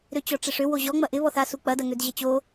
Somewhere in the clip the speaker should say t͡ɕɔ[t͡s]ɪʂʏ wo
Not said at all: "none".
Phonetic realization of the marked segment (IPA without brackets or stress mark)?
ʈ͡ʂ